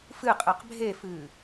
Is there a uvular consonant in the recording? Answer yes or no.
yes